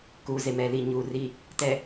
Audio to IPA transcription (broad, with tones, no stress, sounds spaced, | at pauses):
k uː˨ z e˨ m ɛ˨ l i˨ ɲ uː˨ r i˨ | t ɛ˨